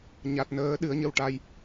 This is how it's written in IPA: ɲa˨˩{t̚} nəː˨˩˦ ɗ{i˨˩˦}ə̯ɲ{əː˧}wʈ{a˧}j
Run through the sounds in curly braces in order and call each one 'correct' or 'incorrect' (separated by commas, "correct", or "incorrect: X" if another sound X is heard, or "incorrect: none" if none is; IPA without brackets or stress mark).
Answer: correct, incorrect: ɨ˨˩˦, incorrect: ə˧, correct